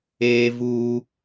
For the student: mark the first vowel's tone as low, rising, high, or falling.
high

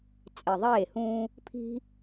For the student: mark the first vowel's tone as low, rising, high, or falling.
low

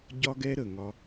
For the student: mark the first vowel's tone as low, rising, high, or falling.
high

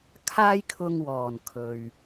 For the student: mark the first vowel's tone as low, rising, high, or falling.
high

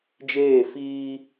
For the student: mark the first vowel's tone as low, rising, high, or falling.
falling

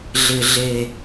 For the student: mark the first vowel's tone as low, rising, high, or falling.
low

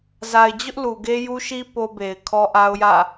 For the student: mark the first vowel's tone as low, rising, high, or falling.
low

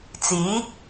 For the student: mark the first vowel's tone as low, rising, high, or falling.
rising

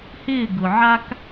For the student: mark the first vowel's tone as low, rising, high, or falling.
falling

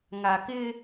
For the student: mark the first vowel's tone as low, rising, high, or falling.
low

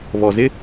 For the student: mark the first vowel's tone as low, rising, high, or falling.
low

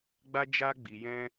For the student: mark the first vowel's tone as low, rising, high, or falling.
high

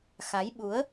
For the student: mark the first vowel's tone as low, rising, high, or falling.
rising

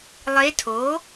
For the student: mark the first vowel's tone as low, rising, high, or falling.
rising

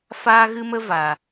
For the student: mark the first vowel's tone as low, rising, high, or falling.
high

